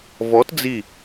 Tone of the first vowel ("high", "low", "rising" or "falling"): rising